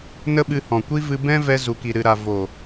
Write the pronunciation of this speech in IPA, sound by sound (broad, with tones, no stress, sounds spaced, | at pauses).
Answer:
n ə˦ ɓ ɨ˧ h ɔ̃˨ kʷ i˦ v ɨ˧ b ɛ̃˦ v ɛ˧ z u˨ k i˨ ɾ ɨ˨ ɾ a˨ v o˨